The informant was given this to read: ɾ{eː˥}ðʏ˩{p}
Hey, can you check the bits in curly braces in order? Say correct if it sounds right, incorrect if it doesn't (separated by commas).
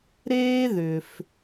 correct, incorrect